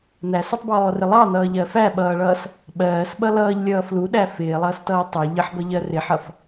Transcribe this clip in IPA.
n̪æsʌtˤbɔːrɪ lˠɑn̪ʌːʎɜ fæɓʌːɭʌːs | ɓɜːsɓʌ lʌːʎlʲʌː fluɗæ fɪːlˠʌːstʌː tˤɜ ʎəħbʌʎɜ rɪħʌf

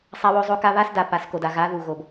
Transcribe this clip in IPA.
sˤa˦wo˦zˤo˦ka˦ βa˦sda˨ pa˨˦sko˨da˨ ɣa˨˦ðu˨ɣo˨b

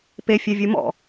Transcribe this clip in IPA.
pefʲɛvʲu mɔ̰

